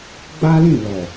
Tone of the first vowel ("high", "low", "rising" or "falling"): high